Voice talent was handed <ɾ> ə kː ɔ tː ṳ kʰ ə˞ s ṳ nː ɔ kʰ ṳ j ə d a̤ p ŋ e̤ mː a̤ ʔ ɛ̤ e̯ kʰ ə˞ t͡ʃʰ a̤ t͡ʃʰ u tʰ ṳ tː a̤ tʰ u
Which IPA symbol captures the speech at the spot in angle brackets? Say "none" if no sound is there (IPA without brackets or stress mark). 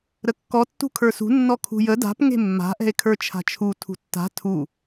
ɾ